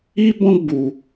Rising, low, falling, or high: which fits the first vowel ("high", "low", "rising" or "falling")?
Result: high